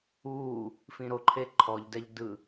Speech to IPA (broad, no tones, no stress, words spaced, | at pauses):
uː | fĩɾoǃʰe ǃʰɔʎdɛʎ dɯ